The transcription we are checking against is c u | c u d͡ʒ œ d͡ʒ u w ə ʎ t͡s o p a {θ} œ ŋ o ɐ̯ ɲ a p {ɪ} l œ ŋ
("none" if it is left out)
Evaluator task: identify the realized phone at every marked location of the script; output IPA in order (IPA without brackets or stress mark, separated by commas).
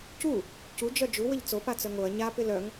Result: t͡s, ɪ